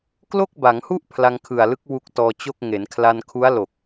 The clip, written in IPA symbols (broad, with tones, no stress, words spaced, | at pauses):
klo˥˩k̚ba˩˦ŋhu˥˩ʔ pʰla˧ŋkʰɯ˨˩a̯lɯ˦˥k̚ wu˦˥k̚tɔː˧t͡ɕo˥˩k̚ ŋe˩˦nkʰla˧nkʰu˦˥a̯ lo˨˩k̚